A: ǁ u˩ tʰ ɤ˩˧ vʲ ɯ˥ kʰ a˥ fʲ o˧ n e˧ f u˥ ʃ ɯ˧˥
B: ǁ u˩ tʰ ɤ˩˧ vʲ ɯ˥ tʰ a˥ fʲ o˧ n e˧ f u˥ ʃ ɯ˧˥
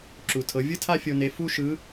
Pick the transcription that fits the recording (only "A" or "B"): B